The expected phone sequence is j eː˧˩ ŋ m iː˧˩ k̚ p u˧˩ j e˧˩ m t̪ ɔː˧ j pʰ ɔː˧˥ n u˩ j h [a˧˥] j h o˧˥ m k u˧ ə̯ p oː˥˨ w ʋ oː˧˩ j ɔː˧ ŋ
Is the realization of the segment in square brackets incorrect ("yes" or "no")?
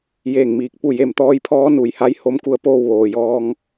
no